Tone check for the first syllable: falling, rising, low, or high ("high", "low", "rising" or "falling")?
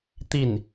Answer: falling